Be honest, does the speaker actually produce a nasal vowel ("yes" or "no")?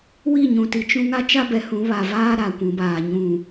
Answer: yes